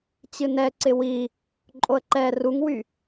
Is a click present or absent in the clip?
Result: present